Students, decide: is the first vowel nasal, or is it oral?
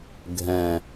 nasal